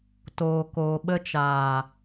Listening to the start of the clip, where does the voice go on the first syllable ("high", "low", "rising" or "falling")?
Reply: low